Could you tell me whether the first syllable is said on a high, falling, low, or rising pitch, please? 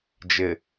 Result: low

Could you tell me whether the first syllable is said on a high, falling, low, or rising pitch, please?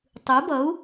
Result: rising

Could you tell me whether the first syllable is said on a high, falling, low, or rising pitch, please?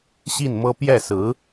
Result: falling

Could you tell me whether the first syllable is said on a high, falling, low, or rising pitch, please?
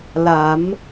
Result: rising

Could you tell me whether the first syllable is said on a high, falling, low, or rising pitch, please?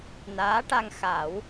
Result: rising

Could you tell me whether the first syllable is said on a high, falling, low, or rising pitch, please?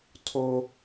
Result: high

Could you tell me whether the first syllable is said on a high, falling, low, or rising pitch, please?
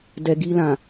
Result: low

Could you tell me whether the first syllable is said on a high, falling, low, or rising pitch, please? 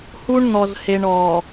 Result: high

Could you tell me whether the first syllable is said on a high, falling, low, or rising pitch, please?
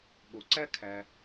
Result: low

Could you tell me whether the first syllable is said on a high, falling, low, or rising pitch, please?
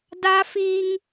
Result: high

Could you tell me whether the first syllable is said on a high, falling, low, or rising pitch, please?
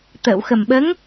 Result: low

